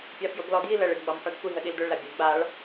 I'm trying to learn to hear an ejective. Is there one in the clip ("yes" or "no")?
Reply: no